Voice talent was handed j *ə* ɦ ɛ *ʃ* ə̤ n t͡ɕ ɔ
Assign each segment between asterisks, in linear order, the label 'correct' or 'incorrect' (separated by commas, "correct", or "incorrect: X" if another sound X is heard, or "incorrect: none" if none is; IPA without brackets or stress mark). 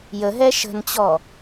correct, correct